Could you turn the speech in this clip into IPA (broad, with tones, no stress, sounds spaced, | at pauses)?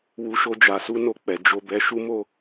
w u˧ ʃ o˧ d͡ʒ a˨ s u˧ n o˨ k͡p ɛ˨ d͡ʒ o˨ b ɛ˨ ʃ u˧ m o˧